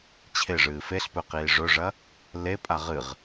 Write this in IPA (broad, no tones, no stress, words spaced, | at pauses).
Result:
t͡ɕʰeʐɨː feɬpɵqiː ʐɵʐɐ | lepʼa ʁɨʁ